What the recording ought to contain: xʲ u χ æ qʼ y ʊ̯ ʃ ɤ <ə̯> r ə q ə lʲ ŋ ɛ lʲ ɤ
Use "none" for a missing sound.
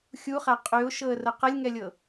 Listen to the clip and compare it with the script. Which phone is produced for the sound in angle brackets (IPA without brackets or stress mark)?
ə̯